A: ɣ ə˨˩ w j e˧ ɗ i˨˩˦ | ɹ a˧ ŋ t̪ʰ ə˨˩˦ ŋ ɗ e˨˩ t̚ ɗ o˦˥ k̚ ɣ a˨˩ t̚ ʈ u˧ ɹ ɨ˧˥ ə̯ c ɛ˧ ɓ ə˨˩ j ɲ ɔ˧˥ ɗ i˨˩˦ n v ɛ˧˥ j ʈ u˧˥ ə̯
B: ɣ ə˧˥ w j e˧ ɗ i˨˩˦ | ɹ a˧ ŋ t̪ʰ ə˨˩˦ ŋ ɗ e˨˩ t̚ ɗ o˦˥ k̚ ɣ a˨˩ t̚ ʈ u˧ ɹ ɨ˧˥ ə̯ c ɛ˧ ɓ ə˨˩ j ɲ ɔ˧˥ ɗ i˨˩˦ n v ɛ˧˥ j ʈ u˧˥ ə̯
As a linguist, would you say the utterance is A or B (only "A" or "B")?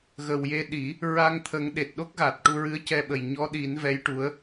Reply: A